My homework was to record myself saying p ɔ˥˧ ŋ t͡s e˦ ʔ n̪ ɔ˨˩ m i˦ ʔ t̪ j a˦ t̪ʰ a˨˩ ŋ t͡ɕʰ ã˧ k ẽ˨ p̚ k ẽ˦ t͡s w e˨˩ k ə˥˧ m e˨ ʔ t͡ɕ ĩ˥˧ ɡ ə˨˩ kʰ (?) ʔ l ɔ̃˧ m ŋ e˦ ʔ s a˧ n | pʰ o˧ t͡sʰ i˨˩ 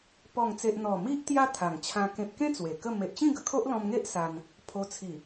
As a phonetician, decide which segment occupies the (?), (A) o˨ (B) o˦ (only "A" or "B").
B